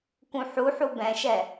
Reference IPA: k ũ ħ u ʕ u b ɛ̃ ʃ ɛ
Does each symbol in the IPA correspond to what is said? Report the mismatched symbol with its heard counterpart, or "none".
ʕ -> ħ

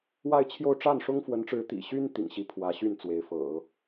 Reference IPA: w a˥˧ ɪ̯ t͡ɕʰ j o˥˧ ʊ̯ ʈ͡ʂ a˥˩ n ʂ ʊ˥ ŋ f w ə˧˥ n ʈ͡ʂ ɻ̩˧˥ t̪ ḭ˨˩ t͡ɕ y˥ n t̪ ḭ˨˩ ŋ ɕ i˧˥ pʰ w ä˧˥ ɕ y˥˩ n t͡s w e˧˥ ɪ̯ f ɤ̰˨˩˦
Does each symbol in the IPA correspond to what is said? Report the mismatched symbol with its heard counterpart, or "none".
t͡ɕ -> ɕ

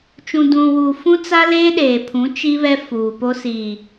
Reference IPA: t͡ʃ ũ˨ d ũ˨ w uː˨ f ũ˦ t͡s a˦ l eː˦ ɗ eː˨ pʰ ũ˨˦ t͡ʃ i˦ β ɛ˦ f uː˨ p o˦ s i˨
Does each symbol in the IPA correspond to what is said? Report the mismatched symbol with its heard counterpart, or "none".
none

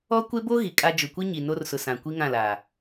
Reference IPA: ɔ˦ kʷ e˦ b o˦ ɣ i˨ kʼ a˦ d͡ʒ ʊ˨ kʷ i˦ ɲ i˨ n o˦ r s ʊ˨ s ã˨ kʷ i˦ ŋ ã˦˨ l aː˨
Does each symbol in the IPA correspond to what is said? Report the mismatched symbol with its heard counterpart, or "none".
none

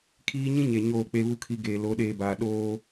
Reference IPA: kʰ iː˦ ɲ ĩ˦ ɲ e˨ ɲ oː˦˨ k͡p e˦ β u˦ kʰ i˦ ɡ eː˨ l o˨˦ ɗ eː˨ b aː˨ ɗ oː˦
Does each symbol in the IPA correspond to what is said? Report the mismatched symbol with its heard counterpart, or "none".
none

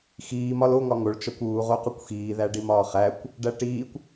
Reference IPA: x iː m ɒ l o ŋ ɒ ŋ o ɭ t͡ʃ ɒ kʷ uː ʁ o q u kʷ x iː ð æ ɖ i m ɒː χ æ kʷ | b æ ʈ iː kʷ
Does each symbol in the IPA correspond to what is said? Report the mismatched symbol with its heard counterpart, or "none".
b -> ɖ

